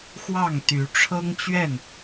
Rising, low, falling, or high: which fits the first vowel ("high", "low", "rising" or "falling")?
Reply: falling